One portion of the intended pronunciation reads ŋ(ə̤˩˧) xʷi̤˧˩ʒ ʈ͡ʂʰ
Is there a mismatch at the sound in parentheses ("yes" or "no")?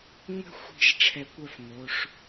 yes